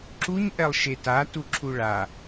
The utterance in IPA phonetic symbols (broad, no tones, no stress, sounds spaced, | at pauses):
ǁ u ɲ ʔ ɛ lˠ ʃ e t a t u ǁʰ u ɭ a